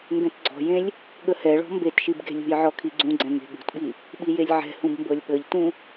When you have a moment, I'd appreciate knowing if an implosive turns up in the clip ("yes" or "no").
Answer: yes